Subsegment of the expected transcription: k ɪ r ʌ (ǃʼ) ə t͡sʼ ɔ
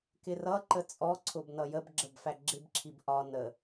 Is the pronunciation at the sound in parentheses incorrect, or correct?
incorrect